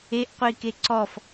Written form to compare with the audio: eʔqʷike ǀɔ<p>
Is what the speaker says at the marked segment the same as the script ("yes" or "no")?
no